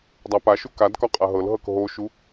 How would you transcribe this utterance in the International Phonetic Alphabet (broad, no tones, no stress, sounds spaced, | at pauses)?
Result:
dˤ a p a ʃ u k a d k ɒ qʼ a ɦ ɤ l ɦ ɤ k ɦ o ʃ u